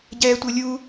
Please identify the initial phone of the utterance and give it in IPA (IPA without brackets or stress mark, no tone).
ɟ